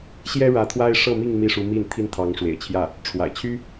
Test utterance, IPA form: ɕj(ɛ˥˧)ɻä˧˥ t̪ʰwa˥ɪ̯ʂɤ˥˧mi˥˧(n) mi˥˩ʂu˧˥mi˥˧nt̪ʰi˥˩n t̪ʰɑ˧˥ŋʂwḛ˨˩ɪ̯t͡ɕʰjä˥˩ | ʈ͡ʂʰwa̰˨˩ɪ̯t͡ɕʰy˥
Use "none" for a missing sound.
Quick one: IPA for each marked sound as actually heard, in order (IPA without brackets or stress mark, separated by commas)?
ɛ˥, ŋ